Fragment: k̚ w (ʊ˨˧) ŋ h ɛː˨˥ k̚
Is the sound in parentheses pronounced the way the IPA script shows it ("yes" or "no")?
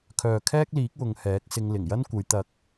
yes